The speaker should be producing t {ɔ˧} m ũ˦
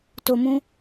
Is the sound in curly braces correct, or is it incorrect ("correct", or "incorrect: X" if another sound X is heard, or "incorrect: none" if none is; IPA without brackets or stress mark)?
incorrect: o˧